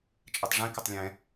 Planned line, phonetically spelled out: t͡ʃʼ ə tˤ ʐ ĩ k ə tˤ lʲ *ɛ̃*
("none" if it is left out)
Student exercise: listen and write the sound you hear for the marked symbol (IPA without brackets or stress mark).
ɛ̃